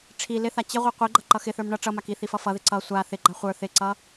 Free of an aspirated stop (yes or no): no